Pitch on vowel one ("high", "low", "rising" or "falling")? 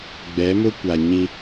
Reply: rising